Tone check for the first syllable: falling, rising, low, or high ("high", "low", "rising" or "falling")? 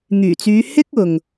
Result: low